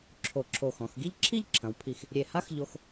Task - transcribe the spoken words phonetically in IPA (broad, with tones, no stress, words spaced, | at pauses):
ǁʰo˧˩ǁʰo˧˩xɔ̃˩˧x ɡi˥˧ʎǁʰi˥˧ʎǁʰɐ̃˩˧wpʰi˧˩x | ɾʲe˧˩ha˥xʎo˧x